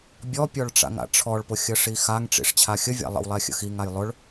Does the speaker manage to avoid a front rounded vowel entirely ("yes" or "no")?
yes